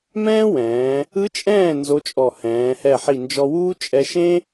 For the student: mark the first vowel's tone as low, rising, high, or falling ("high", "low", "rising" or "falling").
high